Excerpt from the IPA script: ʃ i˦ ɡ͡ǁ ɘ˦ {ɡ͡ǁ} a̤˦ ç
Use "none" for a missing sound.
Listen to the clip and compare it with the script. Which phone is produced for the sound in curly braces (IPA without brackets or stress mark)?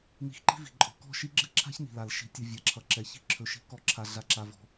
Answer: ǁʰ